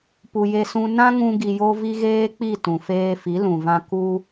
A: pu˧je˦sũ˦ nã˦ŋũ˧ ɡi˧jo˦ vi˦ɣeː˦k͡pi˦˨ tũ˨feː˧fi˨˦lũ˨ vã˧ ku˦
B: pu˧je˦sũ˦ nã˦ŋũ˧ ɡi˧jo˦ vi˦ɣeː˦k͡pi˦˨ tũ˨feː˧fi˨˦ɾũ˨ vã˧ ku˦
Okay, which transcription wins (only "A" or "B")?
A